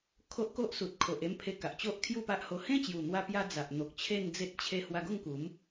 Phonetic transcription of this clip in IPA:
kʰ o˦ ʔ k o˦ ʔ s u˨ t̚ kʰ o˨ ʔ e˥˧ m pʰ e˧ k a˨ ʔ t͡ɕ o˦ ʔ kʰ j u˥˧ p a˦ ʔ h o˧ h ẽ˦ t͡ɕ j u˨˩ n̪ w a˧ p j a˧ d͡z a˨ ʔ n̪ o˨ k̚ t͡ɕʰ e˥˧ n d͡z e˦ t̚ t͡ɕʰ e˦ h w a˧ ɡ o˥˧ ŋ k u˨˦ m

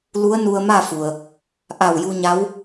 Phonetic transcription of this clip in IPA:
l u˧˥ ə̯ n u˧ ə̯ m a˥˨ f u˩ ə̯ | ʔ a˧˩ w j u˧ ɲ a˧˥ w

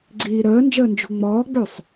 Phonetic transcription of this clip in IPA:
ɡ͡ǀ iː ɾ əː n d͡ʒ əː n d͡ʒ ṳ ŋ͡m ɔː ɡ͡b ʉ sˤ

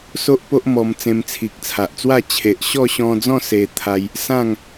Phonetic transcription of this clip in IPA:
s o˦ ʔ p o˦ ʔ m ɔ˧ m t͡s ẽ˧ m t͡sʰ i˨ k̚ t͡sʰ a˨ ʔ t͡s w a˥˧ t͡ɕʰ e˨ ʔ ɕ ɔ˥˧ ɕ ɔ̃˧ d͡z ɔ̃˥˧ s e˧ t̪ʰ a˧ j | s ã˥˧ ŋ

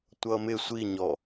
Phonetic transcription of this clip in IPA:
tʷ ʌ m ɪ sʷ i ɲ ɔ

